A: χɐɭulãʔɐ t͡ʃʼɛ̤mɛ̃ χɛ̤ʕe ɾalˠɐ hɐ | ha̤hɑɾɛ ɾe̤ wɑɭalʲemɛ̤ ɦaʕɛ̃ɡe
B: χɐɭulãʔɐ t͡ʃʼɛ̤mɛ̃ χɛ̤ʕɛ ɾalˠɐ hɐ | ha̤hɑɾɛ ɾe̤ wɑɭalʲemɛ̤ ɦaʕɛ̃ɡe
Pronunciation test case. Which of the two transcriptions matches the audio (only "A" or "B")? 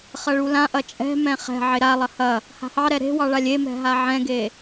A